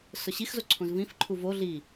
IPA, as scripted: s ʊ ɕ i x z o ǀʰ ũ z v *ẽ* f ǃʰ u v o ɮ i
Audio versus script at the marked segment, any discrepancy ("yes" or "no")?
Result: yes